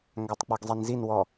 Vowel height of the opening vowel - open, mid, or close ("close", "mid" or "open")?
open